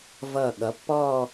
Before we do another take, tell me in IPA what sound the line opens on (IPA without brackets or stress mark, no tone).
v